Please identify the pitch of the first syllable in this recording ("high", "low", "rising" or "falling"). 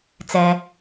high